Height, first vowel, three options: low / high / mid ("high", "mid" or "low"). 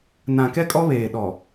low